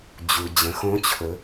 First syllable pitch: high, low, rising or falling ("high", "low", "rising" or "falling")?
low